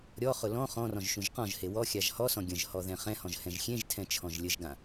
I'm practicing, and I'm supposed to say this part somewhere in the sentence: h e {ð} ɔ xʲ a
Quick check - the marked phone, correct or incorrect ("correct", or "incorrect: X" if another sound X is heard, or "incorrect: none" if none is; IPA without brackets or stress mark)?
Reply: incorrect: w